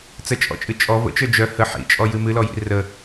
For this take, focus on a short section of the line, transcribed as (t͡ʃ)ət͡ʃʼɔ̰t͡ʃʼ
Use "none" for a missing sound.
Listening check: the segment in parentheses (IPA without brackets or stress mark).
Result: t͡s